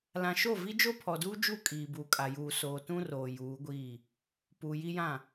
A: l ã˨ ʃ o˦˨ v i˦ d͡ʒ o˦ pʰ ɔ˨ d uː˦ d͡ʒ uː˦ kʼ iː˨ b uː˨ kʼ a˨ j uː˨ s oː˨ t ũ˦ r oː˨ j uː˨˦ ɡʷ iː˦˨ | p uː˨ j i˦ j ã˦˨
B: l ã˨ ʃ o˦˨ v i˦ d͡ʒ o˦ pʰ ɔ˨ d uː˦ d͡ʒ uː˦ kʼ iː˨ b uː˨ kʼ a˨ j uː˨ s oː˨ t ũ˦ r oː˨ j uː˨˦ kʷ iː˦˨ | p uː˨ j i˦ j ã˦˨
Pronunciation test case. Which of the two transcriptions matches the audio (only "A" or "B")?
A